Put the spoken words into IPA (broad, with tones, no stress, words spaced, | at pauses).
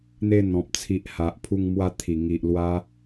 n̪e˧n̪ɔ̃˨p̚ t͡sʰi˨ʔ ha˨ʔpʰu˧ŋ mwa˧ t̪ʰi˨˩ŋi˨ʔlwa˧